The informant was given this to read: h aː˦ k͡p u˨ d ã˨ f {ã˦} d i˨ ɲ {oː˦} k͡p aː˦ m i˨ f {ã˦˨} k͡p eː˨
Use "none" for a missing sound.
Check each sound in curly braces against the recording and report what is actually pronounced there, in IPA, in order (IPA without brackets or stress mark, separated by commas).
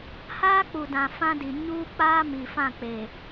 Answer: ã˦, uː˦, ã˦˨